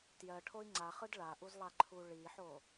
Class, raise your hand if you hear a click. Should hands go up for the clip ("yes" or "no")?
yes